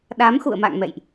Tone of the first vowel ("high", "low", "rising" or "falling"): rising